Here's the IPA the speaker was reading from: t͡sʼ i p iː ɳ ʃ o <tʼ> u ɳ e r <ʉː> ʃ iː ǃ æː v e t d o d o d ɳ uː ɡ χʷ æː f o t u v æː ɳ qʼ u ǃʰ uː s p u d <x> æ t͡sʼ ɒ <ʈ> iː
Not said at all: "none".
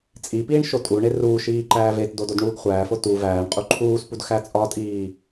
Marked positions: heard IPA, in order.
tʼ, uː, x, tʼ

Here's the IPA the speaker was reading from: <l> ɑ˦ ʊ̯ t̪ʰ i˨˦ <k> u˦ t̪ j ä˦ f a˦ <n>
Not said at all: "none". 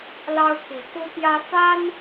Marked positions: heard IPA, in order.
l, k, n

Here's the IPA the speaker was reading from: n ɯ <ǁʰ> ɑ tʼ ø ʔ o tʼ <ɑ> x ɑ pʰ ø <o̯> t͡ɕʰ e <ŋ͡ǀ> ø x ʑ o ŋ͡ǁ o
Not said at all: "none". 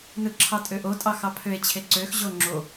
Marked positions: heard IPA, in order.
ǁʰ, ɑ, e̯, ǀ

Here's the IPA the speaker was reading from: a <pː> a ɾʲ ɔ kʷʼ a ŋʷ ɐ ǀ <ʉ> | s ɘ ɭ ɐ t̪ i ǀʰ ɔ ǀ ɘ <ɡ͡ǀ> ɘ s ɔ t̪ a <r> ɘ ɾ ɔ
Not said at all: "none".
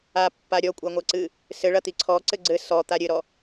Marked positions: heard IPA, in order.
pː, ɨ, ɡ͡ǀ, ɾʲ

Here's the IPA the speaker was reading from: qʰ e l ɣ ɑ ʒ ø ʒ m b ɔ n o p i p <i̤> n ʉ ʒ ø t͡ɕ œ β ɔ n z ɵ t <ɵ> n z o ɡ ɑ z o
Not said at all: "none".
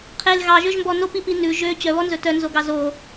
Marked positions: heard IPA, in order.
i, œ

